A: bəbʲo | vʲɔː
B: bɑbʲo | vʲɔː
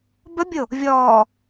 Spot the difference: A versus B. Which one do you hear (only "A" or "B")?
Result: A